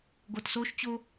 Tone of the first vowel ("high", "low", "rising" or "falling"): low